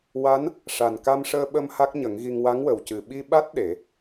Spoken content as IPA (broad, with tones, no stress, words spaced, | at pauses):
wa˧˥n | ʂa˨˩n ka˧mʂəː˧ɓə˧m ha˦˥k̚ɲə˨˩˦ŋɣi˧ŋ wa˧˥ŋwə˨˩wcɨ˨˩ ɓi˧ɓa˦˥t̚ ɗe˨˩˦